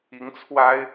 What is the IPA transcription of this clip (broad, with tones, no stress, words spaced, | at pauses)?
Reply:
i˨˦ŋt͡sʰwa˦ɪ̯